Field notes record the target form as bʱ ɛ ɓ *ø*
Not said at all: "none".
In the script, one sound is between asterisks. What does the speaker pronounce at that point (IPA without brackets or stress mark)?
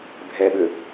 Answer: ø